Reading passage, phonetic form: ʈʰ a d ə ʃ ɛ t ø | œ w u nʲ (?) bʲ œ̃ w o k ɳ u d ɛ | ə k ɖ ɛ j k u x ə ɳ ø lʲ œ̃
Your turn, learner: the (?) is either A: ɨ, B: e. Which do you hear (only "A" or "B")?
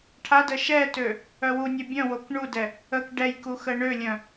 B